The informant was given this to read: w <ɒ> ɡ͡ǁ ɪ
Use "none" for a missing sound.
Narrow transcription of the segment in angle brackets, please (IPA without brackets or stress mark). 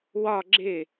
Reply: ɒ